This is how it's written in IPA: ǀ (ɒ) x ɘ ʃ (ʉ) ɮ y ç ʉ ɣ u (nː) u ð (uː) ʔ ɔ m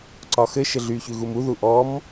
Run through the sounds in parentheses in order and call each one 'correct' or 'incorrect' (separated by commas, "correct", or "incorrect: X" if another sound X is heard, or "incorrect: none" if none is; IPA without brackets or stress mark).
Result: correct, incorrect: ɘ, incorrect: m, incorrect: u